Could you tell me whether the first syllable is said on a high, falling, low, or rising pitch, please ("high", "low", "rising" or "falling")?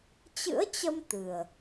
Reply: rising